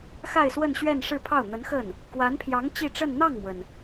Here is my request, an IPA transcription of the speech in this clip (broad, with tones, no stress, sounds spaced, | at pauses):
x a˥˧ ɪ̯ s w ə˥˧ n ɕ ɥ ɛ˥˧ n ʂ ɻ̩˥˧ pʰ ɑ˥˩ ʊ̯ n̪ ə˧˥ n x ə˥˩ n | k w a˧˥ n pʰ j ɑ˧˥ ŋ t͡ɕ i˥˧ ʈ͡ʂ ə˥˧ n n̪ ɑ˥˩ ŋ m w ə˩ n